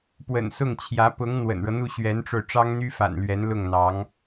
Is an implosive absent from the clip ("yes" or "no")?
yes